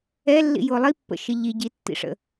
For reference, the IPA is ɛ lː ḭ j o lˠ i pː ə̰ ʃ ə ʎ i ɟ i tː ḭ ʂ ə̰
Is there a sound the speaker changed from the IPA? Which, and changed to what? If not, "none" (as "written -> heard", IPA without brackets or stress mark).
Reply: none